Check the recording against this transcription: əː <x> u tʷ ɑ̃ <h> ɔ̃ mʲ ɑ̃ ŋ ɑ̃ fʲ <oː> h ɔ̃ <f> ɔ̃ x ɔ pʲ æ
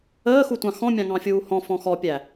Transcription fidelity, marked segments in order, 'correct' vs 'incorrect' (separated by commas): correct, incorrect, incorrect, correct